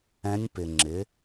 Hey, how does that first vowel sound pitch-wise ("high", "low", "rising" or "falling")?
rising